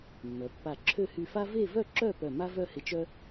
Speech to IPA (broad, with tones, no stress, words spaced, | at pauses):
mːœ˩˧pːa˧˩ǁʰø˥˧ hy˧fa˥ ve˥˧vœ˥˧ǁœ˥˧ pœ˧˩ ma˥vœ˥˧hɪ˧t͡ʃœ˥